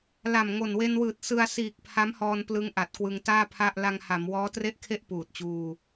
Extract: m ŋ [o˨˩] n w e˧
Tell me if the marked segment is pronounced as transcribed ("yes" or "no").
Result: yes